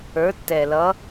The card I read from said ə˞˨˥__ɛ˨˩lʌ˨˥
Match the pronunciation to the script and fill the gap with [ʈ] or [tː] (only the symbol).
tː